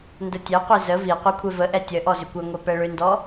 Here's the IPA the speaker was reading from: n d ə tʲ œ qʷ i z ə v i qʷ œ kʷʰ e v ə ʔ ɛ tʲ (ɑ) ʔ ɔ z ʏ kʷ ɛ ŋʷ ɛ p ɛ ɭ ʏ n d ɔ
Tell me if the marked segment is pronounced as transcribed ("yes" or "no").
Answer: no